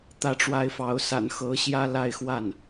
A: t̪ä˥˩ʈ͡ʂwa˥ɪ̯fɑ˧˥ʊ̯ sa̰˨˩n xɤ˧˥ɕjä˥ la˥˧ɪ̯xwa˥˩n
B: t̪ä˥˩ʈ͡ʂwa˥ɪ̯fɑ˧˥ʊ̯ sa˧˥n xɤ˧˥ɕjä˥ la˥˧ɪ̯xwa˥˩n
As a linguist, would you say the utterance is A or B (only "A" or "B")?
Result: A